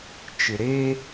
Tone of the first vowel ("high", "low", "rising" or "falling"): low